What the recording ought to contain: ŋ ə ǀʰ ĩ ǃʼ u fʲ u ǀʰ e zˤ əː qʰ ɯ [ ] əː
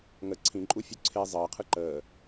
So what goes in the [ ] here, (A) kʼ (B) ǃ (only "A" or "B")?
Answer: B